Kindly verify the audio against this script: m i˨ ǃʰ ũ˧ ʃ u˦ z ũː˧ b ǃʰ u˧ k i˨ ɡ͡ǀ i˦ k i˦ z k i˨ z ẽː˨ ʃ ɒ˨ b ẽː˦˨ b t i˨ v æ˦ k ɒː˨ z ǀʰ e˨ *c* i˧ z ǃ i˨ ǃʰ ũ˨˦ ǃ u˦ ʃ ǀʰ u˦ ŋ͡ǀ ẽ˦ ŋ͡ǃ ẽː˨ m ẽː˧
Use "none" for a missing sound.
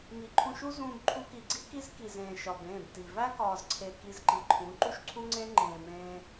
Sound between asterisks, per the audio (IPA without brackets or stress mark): k